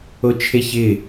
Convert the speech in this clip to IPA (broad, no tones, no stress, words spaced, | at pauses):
ot͡ʃʰeçɪ